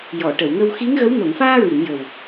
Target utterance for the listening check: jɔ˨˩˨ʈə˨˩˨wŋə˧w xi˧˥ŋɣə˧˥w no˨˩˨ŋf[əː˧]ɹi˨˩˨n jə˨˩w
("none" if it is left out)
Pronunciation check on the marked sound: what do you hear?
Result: aː˧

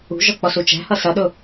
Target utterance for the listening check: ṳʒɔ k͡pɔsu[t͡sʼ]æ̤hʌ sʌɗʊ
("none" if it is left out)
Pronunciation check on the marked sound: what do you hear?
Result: t͡ʃ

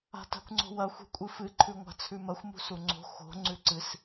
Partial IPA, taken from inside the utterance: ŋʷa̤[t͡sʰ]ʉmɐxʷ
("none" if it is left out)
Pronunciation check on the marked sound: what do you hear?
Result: t͡sʰ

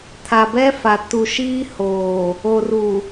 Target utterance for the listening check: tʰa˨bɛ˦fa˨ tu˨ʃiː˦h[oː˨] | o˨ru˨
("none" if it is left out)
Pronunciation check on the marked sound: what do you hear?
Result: oː˨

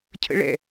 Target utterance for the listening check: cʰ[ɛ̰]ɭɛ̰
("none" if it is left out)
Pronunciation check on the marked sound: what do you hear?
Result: ə̰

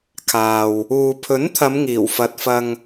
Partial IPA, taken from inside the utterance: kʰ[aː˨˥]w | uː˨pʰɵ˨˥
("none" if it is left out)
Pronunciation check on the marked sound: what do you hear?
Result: aː˨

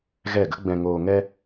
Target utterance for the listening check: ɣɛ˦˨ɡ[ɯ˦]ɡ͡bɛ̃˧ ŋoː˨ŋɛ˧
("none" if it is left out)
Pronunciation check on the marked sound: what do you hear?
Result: ə˦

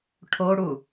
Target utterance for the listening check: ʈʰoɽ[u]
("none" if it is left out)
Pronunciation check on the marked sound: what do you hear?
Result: u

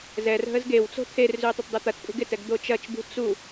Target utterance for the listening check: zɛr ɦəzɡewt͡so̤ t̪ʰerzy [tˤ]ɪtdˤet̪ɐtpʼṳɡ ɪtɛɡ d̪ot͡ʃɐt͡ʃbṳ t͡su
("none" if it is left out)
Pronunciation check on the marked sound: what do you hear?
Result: tˤ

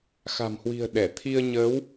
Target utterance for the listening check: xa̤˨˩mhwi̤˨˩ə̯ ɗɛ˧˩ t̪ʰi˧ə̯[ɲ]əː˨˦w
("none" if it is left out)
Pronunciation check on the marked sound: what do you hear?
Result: ɲ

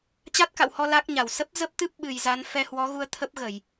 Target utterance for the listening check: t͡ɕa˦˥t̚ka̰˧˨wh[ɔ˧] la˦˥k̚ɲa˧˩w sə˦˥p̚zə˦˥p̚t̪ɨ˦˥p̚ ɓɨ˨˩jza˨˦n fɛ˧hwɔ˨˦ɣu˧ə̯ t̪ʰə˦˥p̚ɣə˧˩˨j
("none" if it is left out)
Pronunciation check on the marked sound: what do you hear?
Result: ɔ˧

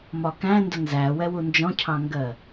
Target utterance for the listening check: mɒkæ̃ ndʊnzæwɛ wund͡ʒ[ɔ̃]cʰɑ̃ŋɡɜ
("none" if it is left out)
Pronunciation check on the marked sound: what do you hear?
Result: ɔ̃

